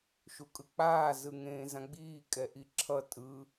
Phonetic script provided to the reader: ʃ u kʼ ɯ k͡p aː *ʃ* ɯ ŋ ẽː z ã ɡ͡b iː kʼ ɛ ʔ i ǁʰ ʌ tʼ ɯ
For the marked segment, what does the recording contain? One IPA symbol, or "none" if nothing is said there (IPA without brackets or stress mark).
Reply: z